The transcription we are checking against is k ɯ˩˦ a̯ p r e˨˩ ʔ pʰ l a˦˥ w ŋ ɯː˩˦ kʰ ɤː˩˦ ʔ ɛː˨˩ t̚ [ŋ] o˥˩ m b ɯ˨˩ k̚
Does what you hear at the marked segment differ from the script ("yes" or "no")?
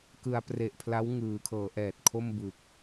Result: yes